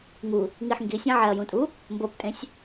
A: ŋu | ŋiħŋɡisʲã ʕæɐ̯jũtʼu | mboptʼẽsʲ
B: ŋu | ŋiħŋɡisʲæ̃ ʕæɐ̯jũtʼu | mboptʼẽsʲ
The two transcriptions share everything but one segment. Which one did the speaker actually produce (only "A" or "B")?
B